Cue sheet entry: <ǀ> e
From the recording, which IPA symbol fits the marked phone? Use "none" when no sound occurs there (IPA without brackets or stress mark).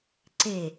ǀ